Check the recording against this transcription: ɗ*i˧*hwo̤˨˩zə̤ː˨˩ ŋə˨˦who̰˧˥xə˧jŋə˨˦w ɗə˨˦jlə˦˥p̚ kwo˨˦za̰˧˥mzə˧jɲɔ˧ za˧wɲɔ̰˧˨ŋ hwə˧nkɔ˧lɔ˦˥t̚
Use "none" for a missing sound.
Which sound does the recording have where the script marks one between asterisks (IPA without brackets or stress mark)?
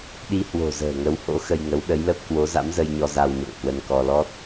i˧